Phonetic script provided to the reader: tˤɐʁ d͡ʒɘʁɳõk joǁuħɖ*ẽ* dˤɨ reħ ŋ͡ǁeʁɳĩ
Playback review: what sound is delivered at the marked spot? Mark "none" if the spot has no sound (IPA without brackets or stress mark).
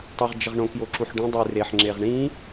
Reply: ĩ